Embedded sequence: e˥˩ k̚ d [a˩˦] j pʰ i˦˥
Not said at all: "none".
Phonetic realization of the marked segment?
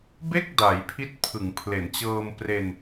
a˩˦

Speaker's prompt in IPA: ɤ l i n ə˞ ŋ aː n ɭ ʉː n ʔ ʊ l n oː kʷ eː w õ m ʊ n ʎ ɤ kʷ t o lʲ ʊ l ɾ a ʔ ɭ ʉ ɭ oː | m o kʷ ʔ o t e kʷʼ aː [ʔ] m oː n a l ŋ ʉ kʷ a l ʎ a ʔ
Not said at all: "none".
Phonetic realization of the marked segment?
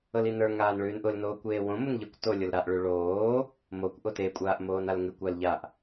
ʔ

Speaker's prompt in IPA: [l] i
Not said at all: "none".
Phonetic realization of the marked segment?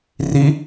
r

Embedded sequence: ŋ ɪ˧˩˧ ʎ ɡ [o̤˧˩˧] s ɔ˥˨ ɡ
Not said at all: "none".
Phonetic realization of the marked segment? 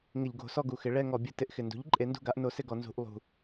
o̤˧˩˧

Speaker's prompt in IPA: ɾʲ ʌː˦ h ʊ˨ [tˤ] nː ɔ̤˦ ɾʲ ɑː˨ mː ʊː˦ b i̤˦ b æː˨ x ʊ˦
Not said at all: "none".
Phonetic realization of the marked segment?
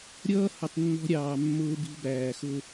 tˤ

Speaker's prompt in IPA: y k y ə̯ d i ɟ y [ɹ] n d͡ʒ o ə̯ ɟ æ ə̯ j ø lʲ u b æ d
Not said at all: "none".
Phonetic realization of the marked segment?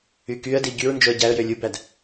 ɹ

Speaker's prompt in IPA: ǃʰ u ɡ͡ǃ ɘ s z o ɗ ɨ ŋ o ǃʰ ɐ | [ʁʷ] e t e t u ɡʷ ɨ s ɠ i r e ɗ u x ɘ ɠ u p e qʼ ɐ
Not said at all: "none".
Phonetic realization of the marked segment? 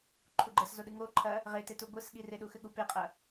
ʁ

